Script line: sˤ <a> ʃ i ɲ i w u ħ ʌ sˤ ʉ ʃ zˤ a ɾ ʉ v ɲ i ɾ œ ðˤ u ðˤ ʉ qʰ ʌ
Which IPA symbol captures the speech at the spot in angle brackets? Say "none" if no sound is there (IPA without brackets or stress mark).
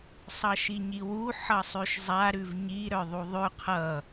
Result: ʌ